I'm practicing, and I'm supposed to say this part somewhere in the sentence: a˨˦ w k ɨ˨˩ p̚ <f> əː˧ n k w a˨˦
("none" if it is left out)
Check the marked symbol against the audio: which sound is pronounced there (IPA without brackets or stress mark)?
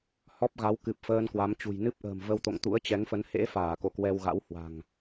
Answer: f